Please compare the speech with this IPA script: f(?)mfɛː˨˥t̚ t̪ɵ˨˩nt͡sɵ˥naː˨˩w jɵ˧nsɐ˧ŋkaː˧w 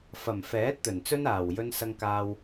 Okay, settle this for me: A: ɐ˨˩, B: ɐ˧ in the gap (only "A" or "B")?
A